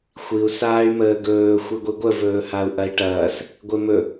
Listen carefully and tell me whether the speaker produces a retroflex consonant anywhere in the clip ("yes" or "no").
yes